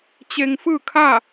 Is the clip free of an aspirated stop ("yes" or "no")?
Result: no